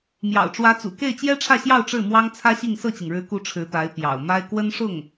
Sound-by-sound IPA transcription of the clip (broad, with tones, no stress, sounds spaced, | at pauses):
m j ɑ̰˨˩ ʊ̯ ʈ͡ʂ w ä˧˥ t͡s ṵ˨˩ k e˥˩ ɪ̯ t͡ɕ j ɛ˥ ʈ͡ʂʰ ä˥˧ ɕ j ɑ˥˧ ʊ̯ ʈ͡ʂ ɻ̩˥˩ m w ɑ˥ ŋ t͡sʰ ä˥ ɕ i˥˧ ŋ s ɤ˥˩ t͡ɕ i˩ ŋ ɻ ɻ̩˧˥ k u˧˥ ʈ͡ʂʰ ɻ̩˧˥ t̪ a˧˥ ɪ̯ p j ɑ̰˨˩ ʊ̯ m a˥ ɪ̯ k w ə˥ n ʂ ʊ˥˩ ŋ